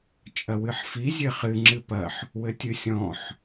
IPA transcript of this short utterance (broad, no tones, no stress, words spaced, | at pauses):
t͡ʃʼɐwɨħfi zʲɘχɨ ŋ͡ǁɨpɐħ | wɘtʲɨ sʲɔ̃ħ